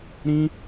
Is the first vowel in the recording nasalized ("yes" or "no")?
yes